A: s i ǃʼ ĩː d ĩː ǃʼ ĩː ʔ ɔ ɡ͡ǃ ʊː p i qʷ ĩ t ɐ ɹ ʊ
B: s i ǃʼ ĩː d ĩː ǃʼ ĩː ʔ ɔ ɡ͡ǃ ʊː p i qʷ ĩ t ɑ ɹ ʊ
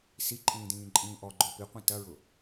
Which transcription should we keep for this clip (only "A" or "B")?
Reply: A